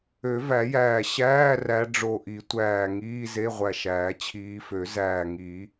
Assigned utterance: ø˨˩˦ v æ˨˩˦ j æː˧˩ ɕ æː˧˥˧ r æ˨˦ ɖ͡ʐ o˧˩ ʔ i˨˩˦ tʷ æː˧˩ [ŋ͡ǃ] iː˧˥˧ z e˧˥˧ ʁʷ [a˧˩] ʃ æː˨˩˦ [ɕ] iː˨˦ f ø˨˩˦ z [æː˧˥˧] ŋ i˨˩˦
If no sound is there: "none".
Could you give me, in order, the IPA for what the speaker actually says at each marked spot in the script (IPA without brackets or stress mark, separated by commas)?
ŋ, æ˧˩, t͡ɕʰ, æː˧˩